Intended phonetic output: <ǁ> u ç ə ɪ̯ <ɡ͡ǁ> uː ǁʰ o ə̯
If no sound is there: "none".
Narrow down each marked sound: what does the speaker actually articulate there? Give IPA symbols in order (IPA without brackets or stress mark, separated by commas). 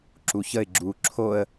ǁ, ɡ͡ǁ